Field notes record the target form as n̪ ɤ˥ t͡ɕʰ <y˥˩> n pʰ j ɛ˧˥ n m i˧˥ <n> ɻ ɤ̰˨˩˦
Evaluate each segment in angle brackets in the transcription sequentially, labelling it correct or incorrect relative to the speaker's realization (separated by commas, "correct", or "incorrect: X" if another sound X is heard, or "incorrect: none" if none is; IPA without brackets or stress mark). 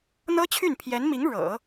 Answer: correct, incorrect: ŋ